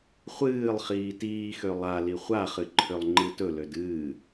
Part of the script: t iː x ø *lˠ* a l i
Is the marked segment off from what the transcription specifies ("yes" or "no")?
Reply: no